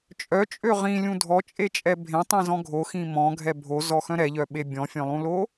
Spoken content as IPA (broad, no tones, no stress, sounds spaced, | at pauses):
t͡ʃʼ œ t͡ʃʼ ø ʁ ĩ lʲ ũ dʱ ɔ t͡ʃʼ e t͡ʃʼ ɛ bʱ ẽ tˤ ĩ z ɔ̃ ɡʱ o x ĩ m ɔ̃ ɡʱ ɛ bʱ o z ɔ x œ̃ ɾ ɛ ʎ œ ɓ e bʲ ɔ̃ fʲ œ̃ lˠ ũ l o